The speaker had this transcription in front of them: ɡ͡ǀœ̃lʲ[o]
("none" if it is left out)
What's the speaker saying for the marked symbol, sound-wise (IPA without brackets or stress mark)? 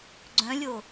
o